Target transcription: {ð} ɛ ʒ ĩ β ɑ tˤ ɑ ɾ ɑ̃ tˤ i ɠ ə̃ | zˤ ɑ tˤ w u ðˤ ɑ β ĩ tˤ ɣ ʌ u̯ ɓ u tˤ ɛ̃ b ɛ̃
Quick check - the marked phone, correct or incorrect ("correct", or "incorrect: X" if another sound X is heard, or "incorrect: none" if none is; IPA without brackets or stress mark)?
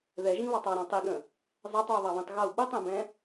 correct